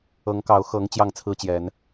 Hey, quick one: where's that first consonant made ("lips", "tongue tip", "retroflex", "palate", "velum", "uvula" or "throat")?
velum